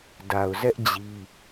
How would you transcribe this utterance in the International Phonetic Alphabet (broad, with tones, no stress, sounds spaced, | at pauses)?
d a˨ ʊ̯ z ɛ˦ ʔ d͡ʑ i˦